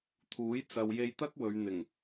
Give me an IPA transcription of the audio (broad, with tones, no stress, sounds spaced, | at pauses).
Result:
t̪ʰ uː˨˥ j t͡s ɐ˧ w j e˧ j t̪ ɐ˥ k̚ w ɵ˨˧ ɥ n̪ ɪ˨˩ ŋ